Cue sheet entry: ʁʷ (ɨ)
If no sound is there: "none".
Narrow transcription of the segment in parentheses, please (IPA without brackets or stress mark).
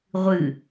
ɨ